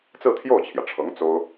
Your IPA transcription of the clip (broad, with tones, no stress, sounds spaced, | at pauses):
t͡s ɹ̩˥˧ t̪ʰ j o˥˩ ʊ̯ t͡ɕʰ j ä˩ ʈ͡ʂʰ ɤ˧˥ ŋ t͡s o˥ ʊ̯